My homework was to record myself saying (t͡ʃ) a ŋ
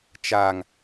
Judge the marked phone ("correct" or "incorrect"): correct